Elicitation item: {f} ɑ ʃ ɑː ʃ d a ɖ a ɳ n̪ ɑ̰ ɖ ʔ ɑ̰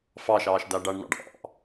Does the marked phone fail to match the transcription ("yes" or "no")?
no